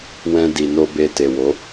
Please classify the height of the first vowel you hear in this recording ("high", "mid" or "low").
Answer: mid